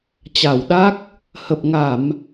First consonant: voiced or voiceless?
voiceless